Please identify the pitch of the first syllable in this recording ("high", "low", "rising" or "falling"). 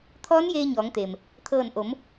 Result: rising